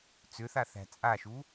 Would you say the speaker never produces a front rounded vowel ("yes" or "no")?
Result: no